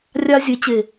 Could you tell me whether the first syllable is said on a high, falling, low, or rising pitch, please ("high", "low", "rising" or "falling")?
high